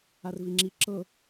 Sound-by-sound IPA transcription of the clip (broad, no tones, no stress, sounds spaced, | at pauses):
a r v i ŋ͡ǁ i ǁ ɤ